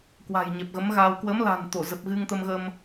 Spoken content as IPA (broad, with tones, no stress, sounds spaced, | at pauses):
k w a̤˨˩ j ɲ ɛ˨˩ p̚ ɣ ə˨˦ m ɣ a˧ w k w ə˨˦ m l a̤˨˩ n t̪ o˧˩ z ə˨˩ p̚ ɣ ɨ˧ ŋ t̪ ə˧ m ɣ ə˧ m